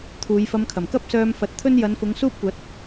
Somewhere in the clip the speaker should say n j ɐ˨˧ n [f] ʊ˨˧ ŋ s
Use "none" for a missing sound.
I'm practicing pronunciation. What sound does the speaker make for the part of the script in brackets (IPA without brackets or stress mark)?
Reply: f